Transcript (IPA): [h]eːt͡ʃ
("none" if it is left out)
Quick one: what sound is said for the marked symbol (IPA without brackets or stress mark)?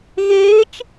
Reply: ɣ